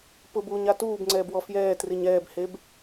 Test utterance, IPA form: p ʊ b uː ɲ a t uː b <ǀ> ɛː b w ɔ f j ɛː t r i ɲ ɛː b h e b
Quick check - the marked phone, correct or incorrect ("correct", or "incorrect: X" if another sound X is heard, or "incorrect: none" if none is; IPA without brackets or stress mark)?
incorrect: ŋ͡ǀ